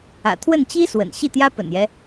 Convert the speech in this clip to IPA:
ä̰˨˩ t̪ʰ w ə˥˩ n t͡ɕ i˥ s w ə̰˨˩ n ɕ i˥˩ t̪ j ä˥ p ə̰˨˩ n j ɛ˦

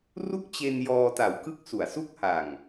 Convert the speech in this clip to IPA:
r u˥˩ k̚ t͡ɕ e˧ n j ɔː˧ t a˨˩ w k ɯ˦˥ k̚ s u˨˩ a̯ s u˦˥ k̚ h a˨˩ ŋ

